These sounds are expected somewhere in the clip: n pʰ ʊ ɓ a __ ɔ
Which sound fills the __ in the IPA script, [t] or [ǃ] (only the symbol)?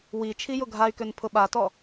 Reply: t